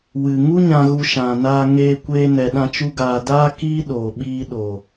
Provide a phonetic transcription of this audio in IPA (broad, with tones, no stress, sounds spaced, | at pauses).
w ɨ˨ ŋ u˦ ɲ ã˧ ɣ u˧ ʃ ã˨ n aː˧ ŋ eː˧ kʷ eː˧ n ɛ˨ ɗ ã˧ t͡ʃ u˦ ɡ aː˧ d aː˧ k iː˦ ɗ oː˨ ɓ iː˧ ɗ o˨